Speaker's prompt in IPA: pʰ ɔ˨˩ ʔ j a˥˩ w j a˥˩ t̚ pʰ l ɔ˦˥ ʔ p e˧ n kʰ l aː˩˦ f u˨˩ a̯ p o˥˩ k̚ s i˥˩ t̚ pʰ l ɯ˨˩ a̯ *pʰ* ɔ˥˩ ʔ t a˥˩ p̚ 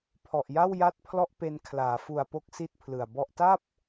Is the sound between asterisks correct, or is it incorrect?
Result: incorrect